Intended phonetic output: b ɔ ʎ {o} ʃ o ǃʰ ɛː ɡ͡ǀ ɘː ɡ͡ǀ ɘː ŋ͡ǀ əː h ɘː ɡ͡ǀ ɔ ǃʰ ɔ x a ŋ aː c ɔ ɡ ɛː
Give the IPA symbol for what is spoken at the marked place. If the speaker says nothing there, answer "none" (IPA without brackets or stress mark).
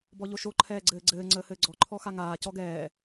o